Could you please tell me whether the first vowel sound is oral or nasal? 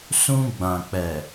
nasal